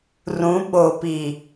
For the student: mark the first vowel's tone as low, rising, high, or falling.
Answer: rising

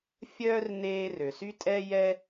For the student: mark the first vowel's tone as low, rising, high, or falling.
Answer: high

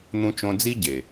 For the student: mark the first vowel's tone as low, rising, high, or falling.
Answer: high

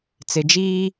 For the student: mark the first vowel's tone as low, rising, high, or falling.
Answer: low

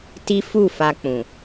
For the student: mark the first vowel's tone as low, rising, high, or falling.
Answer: high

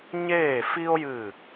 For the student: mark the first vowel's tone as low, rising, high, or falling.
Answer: falling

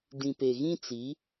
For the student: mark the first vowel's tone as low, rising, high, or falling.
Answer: low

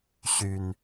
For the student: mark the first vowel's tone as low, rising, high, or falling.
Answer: low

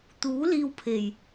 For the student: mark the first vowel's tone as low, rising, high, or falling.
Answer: rising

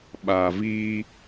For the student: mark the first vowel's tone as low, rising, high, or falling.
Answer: low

